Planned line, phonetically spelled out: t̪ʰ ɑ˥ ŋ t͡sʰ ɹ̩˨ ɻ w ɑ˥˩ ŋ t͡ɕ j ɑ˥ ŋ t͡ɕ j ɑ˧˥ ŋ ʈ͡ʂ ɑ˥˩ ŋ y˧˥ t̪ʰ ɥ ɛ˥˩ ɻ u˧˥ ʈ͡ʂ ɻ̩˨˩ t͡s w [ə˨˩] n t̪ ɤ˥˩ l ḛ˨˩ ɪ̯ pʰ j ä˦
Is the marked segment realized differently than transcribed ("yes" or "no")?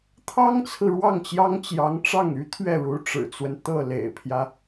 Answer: yes